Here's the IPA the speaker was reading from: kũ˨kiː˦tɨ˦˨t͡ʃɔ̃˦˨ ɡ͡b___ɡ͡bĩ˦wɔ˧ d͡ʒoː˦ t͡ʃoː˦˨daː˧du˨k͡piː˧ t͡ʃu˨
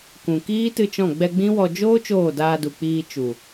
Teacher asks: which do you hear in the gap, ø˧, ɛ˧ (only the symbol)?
ɛ˧